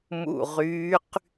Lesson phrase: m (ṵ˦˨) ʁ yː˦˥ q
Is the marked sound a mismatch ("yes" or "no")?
no